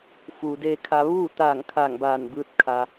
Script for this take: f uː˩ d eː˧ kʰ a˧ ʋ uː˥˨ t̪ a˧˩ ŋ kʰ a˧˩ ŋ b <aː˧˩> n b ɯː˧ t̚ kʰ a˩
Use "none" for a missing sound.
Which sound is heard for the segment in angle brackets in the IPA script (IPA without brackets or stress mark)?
aː˧˩